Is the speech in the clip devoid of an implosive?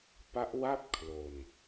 yes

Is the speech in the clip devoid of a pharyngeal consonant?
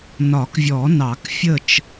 yes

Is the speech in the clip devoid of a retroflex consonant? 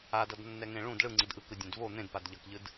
no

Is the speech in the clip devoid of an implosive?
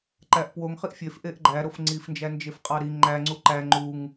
yes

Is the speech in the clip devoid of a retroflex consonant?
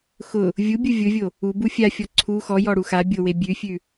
no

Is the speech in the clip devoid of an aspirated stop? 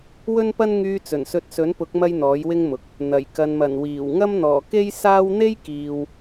yes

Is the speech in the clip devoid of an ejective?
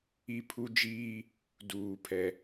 yes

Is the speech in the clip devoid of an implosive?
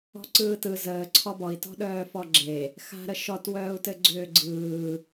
no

